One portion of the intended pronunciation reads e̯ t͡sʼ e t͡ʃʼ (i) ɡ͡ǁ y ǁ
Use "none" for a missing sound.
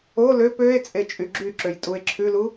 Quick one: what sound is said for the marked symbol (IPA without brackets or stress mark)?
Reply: y